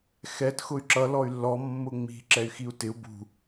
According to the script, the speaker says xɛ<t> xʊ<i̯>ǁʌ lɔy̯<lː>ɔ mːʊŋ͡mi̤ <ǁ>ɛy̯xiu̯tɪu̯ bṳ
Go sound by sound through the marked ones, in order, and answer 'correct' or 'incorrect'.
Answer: correct, incorrect: y̯, correct, correct

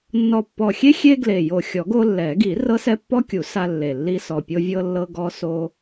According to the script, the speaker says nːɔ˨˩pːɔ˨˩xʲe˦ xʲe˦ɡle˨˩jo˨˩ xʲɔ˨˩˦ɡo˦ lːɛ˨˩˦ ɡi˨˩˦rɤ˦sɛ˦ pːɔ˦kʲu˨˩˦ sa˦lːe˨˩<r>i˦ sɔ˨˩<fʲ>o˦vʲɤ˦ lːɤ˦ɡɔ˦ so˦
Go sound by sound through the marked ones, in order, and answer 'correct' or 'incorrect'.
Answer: incorrect: lː, incorrect: pʲ

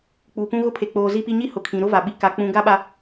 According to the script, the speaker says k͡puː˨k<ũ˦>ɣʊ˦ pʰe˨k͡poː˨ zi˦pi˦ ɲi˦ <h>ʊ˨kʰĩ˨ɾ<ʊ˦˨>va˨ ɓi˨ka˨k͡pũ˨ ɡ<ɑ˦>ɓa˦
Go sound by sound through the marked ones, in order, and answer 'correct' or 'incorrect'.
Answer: correct, correct, incorrect: ʊ˦, incorrect: a˦

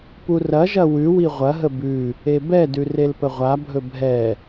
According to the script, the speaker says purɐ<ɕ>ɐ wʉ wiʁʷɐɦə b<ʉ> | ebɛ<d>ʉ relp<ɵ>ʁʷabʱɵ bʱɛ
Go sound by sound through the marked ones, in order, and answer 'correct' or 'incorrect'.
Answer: incorrect: ʒ, correct, correct, incorrect: ə

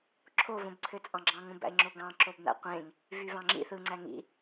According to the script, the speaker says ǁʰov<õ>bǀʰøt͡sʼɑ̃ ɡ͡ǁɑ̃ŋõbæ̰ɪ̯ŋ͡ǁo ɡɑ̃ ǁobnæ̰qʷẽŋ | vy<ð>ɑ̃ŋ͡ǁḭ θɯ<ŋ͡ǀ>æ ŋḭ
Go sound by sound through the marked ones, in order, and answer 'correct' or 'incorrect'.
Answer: correct, incorrect: v, correct

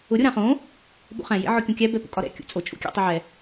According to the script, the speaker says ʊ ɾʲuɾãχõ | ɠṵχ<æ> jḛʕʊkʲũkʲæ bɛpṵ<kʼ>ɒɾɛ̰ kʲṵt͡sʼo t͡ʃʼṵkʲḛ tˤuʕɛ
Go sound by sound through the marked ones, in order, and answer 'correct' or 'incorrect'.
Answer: incorrect: æ̃, correct

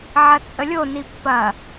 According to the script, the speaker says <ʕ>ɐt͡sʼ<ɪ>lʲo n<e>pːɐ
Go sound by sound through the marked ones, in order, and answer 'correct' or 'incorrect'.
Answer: correct, incorrect: ə, incorrect: i

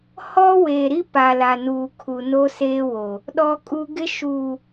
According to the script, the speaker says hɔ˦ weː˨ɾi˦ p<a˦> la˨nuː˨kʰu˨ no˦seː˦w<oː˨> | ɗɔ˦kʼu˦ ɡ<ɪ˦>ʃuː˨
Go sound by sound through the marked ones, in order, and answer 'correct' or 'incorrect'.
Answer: incorrect: a˨, incorrect: o˨, correct

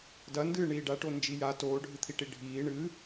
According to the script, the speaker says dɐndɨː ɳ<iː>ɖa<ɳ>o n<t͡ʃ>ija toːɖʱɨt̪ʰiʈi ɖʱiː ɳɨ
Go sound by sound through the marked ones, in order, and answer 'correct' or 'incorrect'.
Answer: correct, incorrect: ʈ, incorrect: d͡ʒ

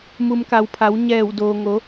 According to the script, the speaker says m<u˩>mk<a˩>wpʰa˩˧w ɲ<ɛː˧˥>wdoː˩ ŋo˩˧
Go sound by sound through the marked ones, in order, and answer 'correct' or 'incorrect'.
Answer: correct, correct, incorrect: ɛː˧˩

